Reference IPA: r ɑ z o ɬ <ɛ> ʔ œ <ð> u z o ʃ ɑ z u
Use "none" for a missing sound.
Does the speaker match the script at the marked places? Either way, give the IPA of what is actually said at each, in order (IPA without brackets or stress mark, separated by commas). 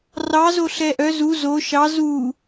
ɛ, z